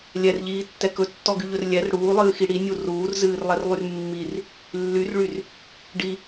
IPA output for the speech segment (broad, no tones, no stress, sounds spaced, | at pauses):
lʲ ɛ r ʎ iː tː ɛ k ɵ tː ɔ ɡ y ʎ ɵ r lʲ ɛ r ɽ uː lˠ ɨː x i ɽ i nʲ u r uː r z ɨː r lˠ ɛ r lˠ y r mː i r | lː y r ɭ y r | ɖ i